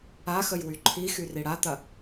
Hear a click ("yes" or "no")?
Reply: yes